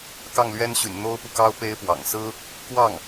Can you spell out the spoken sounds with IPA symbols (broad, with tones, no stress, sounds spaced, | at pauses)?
k ɑ˥˩ ŋ l ɥ ɛ˥ n ɕ y̰˨˩ n n̪ o˥ ʊ̯ p u˨ k ɑ˥ ʊ̯ p e˥ ɪ̯ p w ɑ̰˨˩ ŋ s ɹ̩˥ | k w ɑ˥˩ ŋ